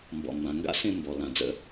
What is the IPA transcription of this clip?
m b ɔ̰˨ m b ã˨ ŋ ɡ a̰˦ s ẽ˦ m b ɔ˨ l ã˨ d͡z ə̰˦

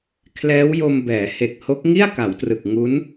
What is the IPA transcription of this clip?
kʰ l ɛː˦˥ w j o˧ m b ɛː˩˦ h e˨˩ k̚ h o˦˥ k̚ ŋ i˥˩ a̯ k a˩˦ w t r ɯ˨˩ k̚ ŋ u˦˥ n

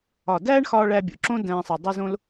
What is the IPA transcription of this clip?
ɒ˨ d æː˦ ɳ x ɒː˧ ɭ æ˧ bʲ o̰˨ ǁ õ˦ d æ̃ː˧ sˤ e˨ dˤ u˧ z õ˦ l

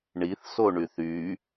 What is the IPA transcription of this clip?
ɳ i θ s o ɳ y θ y

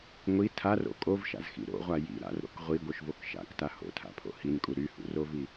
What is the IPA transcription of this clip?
ŋʷ i tʰ a r o̰ kʼ o v ʃ a̰ z x ḭ ɾ o̰ ʁʷ a j ḭ ɾ a̰ r ɾ o̰ k ʁʷ i ɡʷ œ ʃ v o k ʃ a̰ k t a h o̰ tʰ a̰ pʰ o̰ h i n kʼ u ɾ y h ṵ r o v i

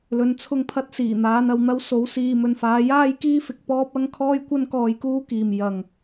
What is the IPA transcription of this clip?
l ɵ˨˧ n t͡sʰ ʊ˧ ŋ pʰ ɐ˧ t̚ s iː˨˩ n̪ aː˨˧ n ɐ˨ w n̪ ɐ˥ w s o˨˧ w s iː˨ m ɵ˨ n f aː˨˧ j aː˥ j k iː˥ f ɪ˨ k̚ p ɔː˥ p̚ ɐ˥ ŋ kʰ ɔː˥ j kʷ ɐ˥ n k ɔː˧ j k uː˥ k iː˨ m j ɐ˨ ŋ

